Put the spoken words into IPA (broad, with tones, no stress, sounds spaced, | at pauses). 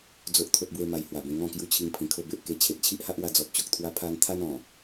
d͡z o˦ ʔ t̪ʰ o˦ t̚ b w e˦ m a˧ j h w a˨˩ b ẽ˧ ŋ ɔ̃˥˧ k j u˦ t͡ɕʰ i˧ ŋ pʰ ĩ˨˩ kʰ o˧ b e˨ ʔ k e˧ t͡ɕʰ e˨ t̚ t͡ɕʰ i˦ ʔ h a˦ ʔ w a˧ d͡z ɔ˨ p̚ t͡ɕ o˨ k̚ t̪ʰ w a˧ pʰ a˧ n t̪ʰ a˦ n ɔ̃˨˩